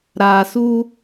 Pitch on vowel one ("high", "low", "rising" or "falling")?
low